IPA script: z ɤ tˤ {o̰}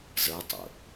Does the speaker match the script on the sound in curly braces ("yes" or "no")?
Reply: yes